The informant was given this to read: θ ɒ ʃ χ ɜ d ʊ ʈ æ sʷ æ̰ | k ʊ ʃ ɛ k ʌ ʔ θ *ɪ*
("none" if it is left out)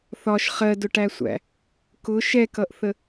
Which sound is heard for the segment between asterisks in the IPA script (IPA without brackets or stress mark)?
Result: ə